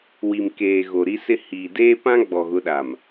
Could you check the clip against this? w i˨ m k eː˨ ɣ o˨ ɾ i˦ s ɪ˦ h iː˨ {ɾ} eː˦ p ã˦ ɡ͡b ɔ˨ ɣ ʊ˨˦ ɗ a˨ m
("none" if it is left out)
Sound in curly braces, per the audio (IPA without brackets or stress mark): d